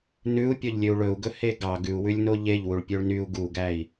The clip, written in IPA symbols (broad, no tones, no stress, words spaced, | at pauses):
nʉu̯ pʲɔʎlʲøu̯ɭɵu̯ɡɵ heɡɑ ɡʉu̯wʉlʲno ʎeʎ wuɭpʲøɭnyu̯ ɡuɡæi̯